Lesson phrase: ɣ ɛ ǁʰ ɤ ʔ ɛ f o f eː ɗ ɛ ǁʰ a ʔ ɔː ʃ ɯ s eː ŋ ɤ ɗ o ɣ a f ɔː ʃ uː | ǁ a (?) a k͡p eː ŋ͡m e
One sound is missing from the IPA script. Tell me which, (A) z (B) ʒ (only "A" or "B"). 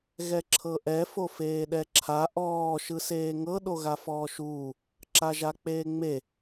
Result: B